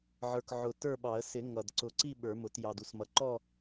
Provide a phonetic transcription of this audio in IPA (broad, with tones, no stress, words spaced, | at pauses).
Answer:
ʕə˞˨˩kʕʊ˨˩ tə˞˥˧ɓɑ˨˩˦ə̯ sɪ˨˩˦ ŋʌ˨˩d ǀʊ˨˩˦ǀi˥˧ ɓə˞˨˩˦mʊ˨˩˦t jɑ˨˩du˥˧smʌ˨˩˦ ǃɔ˥˧